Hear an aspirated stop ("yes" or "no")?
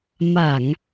no